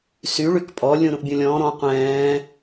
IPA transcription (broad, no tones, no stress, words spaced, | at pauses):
syɭyk pʼɔlʲũ ɾũʔbʲũlʲɔ̃ː ɾɔ̃ qʷɛ̃ː